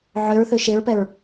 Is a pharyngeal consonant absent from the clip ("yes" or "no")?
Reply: no